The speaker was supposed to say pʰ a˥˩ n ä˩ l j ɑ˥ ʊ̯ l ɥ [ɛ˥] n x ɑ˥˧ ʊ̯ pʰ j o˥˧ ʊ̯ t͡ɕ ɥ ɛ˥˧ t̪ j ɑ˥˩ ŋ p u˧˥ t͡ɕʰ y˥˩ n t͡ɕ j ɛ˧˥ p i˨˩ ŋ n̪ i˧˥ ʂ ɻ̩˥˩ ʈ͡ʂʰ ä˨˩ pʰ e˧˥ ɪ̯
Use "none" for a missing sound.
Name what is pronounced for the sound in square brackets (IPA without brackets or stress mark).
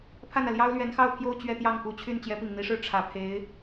ɛ˧˥